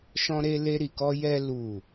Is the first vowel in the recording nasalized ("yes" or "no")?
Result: yes